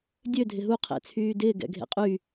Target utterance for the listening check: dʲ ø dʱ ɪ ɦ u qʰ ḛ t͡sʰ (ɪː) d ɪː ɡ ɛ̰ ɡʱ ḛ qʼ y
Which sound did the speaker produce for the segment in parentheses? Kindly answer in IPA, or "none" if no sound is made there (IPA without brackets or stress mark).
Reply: yː